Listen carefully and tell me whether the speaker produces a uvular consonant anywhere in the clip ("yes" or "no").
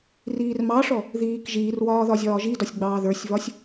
no